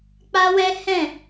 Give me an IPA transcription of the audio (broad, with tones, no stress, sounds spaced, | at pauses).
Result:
k͡p a˦ w ɛ˦ h ɛ̃˦˨